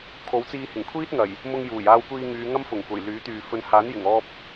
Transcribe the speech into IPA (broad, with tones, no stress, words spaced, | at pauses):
kʰo˨˥wt͡siː˧ hɪ˨˩ŋkʷʰiː˥t̚ ŋɐ˨˩j | mʊ˧ŋjuː˨˩jaː˧wkʷiː˧ ŋyː˨˧ŋɐ˥mfʊ˨˩ŋkʷɐ˨˩j lyː˨˥t̪yː˨ fɵ˨nhaː˨˥n jɪ˨˩ŋɔː˧p̚